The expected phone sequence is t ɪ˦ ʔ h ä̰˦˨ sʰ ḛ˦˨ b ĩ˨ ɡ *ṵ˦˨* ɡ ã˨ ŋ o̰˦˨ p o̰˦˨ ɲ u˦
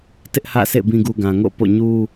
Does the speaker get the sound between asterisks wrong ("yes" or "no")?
yes